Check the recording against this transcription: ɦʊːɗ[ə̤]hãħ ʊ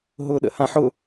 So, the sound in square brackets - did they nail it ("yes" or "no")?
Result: no